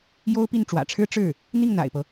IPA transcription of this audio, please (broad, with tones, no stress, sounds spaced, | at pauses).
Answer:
j o˥ ʊ̯ p i˥˩ n ʈ͡ʂ w ä̰˨˩ ʈ͡ʂʰ ɻ̩˥ ʈ͡ʂ ɻ̩˥˩ | n̪ i˥˩ ŋ n̪ a̰˨˩ ɪ̯ p ɤ˦